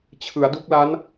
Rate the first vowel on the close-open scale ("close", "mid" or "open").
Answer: close